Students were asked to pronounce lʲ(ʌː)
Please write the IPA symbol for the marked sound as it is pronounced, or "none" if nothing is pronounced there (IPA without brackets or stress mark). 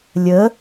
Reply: əː